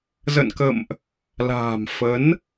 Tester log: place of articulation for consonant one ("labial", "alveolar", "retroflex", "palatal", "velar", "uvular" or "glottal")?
alveolar